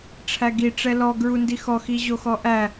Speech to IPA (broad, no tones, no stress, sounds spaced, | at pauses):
ʈ͡ʂʰ æ ɡ i ʈ͡ʂ ɛ l ɔ ɡ ɹ u n d i x ɔ x i ʑ o x ɔ ʔ æ